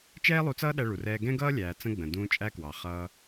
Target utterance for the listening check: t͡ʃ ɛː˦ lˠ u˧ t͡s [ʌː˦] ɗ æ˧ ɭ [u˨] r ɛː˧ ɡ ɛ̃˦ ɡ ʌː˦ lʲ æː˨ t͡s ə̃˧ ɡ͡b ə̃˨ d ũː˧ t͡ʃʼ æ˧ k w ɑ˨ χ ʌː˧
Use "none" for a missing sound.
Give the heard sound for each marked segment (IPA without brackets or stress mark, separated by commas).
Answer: ʌː˦, u˨